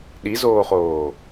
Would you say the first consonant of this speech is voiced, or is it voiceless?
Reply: voiced